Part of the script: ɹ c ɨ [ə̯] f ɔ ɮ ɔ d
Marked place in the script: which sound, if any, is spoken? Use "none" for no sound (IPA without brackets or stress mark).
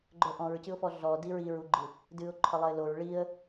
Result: ʊ̯